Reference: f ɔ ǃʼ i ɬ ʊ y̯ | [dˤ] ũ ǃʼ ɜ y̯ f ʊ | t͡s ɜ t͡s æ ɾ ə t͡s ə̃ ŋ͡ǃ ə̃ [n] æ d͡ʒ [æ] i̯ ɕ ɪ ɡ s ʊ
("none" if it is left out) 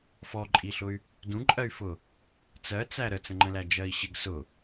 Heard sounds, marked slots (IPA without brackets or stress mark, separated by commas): d, l, ɜ